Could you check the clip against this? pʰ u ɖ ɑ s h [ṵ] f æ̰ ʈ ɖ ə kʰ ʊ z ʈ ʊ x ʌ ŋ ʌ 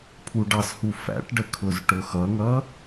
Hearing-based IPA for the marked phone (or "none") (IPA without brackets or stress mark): u